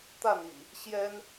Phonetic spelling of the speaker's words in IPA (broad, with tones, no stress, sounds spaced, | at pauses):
t̪ a˥˨ n ḭ˨˩ | ɕ j ɛ˦ n